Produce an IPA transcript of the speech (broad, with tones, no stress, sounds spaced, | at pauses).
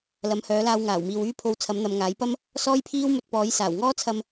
l ɐ˨˥ m h œː˨˥ l aː˧ w ŋ aː˨˩ w m iː˨ w yː˥ pʰ o˧ w t͡sʰ ɐ˨˥ m n̪ ɐ˨˧ m ŋ aː˨˥ j p ɐ˥ m | s ɔː˥ j pʰ iː˥ w m ɵ˧ t̚ p ɔː˨˥ j s aː˨˩ w ŋ ɔː˥ t͡sʰ ɐ˧ m